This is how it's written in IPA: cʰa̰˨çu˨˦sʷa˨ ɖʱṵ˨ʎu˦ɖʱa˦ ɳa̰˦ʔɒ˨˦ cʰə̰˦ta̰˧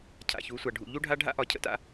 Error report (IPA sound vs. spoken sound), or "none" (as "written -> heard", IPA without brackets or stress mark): ɳ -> ɖʱ